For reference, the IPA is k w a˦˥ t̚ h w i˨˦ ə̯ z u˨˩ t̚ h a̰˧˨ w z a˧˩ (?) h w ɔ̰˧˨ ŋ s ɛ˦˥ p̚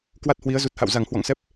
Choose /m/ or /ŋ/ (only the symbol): ŋ